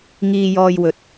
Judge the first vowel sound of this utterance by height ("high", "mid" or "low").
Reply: high